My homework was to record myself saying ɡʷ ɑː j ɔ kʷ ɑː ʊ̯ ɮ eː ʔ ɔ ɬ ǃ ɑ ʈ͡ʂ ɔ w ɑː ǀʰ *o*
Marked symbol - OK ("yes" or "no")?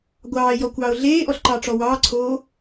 no